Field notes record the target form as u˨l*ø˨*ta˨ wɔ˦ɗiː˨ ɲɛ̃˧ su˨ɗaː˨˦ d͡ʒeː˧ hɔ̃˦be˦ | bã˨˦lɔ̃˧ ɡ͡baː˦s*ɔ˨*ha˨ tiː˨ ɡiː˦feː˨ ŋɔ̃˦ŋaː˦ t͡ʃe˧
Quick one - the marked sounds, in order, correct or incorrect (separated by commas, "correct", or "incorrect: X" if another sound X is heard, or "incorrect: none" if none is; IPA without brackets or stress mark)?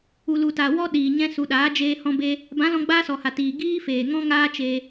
incorrect: u˨, correct